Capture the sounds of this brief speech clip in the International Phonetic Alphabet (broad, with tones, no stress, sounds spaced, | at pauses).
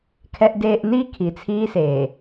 kʰ ɛ˨ ʔ d eː˨ ʔ n i˦˨ kʰ i˨ t͡sʰ iː˦ s eː˨